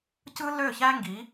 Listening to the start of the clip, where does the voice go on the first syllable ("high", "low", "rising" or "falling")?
high